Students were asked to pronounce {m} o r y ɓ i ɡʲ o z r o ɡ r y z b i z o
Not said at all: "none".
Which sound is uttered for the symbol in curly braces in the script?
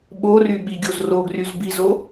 ɓ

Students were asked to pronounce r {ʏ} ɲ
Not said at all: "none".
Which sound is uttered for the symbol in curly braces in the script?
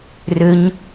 ʏ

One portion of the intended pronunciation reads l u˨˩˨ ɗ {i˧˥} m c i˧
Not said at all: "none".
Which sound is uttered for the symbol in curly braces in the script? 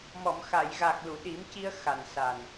i˨˩˦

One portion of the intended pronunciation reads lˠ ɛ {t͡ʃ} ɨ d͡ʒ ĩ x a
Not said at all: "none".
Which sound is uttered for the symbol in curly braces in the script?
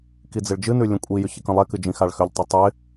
k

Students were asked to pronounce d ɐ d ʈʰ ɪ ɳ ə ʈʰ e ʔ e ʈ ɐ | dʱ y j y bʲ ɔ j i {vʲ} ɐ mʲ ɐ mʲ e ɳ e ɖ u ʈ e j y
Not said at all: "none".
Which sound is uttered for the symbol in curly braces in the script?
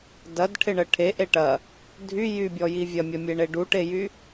vʲ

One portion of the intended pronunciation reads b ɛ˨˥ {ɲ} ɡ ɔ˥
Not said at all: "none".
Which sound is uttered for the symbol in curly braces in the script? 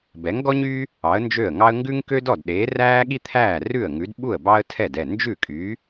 ŋ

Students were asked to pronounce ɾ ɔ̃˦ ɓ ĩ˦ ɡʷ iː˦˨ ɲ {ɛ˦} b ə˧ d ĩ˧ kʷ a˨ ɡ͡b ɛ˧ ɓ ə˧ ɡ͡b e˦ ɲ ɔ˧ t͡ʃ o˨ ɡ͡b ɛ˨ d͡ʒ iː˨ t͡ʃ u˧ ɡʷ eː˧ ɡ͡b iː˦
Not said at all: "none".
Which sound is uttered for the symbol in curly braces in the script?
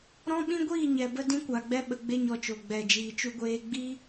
ɛ˨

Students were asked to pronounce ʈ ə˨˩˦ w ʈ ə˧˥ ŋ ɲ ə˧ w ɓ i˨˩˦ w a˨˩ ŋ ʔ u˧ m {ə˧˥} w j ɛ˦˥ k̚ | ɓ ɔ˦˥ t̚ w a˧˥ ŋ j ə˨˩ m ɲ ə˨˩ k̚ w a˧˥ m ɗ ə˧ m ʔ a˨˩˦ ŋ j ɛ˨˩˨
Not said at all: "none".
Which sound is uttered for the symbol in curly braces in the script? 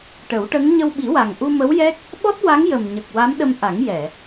ə˧˥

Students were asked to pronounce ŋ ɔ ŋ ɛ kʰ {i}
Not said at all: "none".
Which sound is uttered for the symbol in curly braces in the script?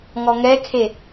e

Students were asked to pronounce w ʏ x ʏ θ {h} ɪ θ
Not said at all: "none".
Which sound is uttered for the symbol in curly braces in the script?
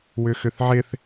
ʕ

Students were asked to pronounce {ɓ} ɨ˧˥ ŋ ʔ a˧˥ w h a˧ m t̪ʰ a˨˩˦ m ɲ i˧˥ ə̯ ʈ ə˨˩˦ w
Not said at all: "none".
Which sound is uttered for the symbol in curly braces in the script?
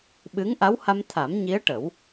ɓ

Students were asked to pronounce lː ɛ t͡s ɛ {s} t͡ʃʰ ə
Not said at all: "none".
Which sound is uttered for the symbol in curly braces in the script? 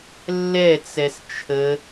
s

